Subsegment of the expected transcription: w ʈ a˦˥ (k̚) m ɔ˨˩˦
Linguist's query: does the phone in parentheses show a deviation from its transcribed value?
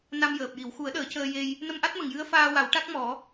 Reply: no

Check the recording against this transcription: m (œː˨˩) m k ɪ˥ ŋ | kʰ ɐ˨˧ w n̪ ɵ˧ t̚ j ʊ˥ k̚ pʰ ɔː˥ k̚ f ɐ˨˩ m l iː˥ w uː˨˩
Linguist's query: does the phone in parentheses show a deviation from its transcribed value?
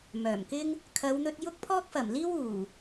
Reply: no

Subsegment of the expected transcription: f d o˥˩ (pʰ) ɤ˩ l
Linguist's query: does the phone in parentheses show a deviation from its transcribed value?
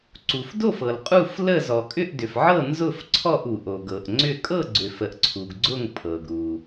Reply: yes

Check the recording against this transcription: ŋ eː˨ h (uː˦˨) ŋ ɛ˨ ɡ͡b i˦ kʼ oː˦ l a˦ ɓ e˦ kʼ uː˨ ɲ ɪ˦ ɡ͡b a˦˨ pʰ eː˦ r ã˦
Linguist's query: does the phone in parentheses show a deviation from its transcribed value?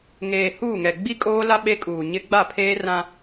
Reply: no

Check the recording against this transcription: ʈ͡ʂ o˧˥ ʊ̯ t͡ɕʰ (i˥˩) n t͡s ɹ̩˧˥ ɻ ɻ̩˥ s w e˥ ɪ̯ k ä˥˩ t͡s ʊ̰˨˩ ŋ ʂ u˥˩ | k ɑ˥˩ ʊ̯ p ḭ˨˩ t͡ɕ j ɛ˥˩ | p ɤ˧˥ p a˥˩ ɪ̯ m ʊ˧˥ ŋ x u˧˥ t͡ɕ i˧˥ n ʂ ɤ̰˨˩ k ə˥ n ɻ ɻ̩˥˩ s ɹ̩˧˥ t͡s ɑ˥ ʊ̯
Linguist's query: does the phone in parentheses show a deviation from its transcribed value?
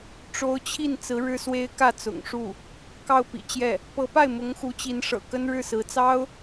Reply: no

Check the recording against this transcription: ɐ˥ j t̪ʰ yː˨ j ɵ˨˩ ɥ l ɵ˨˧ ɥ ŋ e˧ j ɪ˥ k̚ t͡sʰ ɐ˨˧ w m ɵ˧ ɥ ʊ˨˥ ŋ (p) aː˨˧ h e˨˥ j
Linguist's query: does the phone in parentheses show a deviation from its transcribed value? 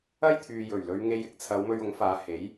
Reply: yes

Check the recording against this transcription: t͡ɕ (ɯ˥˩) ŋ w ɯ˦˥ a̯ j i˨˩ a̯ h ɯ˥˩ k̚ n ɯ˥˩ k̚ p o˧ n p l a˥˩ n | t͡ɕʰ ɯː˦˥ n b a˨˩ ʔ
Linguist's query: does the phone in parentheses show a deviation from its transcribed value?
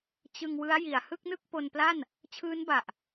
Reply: yes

